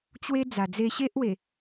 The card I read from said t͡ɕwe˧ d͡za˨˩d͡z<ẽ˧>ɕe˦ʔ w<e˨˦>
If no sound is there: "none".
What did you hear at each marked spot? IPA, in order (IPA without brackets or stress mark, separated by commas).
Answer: e˧, e˨˩